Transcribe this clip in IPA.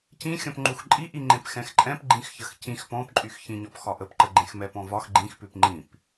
c ĩ xʲ ɔ̃ p ŋ͡ǃ u x ǃʼ i ʔ i ŋ͡ǃ ẽ p x ɛ̃ x ǃʼ ɛ̃ p ɡ͡ǃ ĩ x ç ə x c ĩ x p ɔ̃ p ǃʼ y x ç ĩ ɲ ɔ p x ɒ ʔ ə p ǃ ə ɡ͡ǃ ẽ x m ɛ p ɔ̃ v ɒ x ɡ͡ǃ ĩ x p ʉ p ŋ͡ǃ ĩ p

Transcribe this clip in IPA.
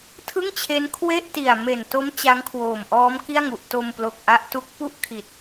tʰ ɯ˥˩ ŋ t͡ɕʰ e˦˥ n kʰ w e˥˩ ʔ t i˨˩ a̯ m e˨˩ n t o˦˥ m t͡ɕ a˦˥ ŋ kʰ w oː˨˩ m ʔ ɔː˦˥ m k i˥˩ a̯ ŋ u˨˩ ʔ t o˧ m p l o˨˩ k̚ ʔ a˦˥ ʔ t u˦˥ k̚ p u˥˩ ʔ kʰ i˨˩ t̚

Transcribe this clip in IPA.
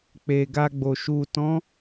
k͡p e˨ ɡ a˧ ɡ͡b o˨ ʃ u˨ t ɔ̃˨˦

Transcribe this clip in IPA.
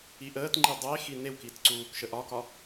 i ʔ əː t ŋ͡ǃ i dˤ e x i n e w k i t ǀ uː k ʃ ə ʔ ɒ k ɒ

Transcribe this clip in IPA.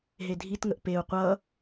ɦ e dʱ i t ŋ ə ʔ p e u̯ qʷ ʌ

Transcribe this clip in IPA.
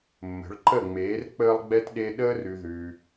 mː ə̤˨˦ ɭ ǃ ə˦˨ ŋ͡m eː˨˦ r k͡p əː˦ lˠ ɡ͡b ɛ˦ t ɗ e˦ ɗ əː˦ r ʉ˧ ð ʉː˧

